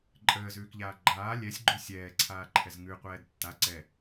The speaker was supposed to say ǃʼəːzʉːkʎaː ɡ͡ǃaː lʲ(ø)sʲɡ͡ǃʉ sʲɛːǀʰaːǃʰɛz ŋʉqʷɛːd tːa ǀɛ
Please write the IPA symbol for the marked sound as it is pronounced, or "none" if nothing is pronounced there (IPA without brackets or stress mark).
ɛ